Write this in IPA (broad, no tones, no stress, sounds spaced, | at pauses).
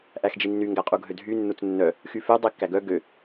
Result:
ʔ æ x d͡ʒ i nː y ŋ ɡ æ qʼ u ɡʱ ø dʱ y nː u t͡s nː œ | x y f ø dˤ i kː æ ɡ œ ɡ ø